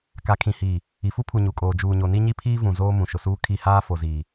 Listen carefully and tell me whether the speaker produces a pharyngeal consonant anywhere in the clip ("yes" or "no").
no